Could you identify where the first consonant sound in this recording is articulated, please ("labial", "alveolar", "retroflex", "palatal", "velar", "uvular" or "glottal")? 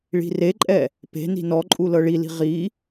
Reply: retroflex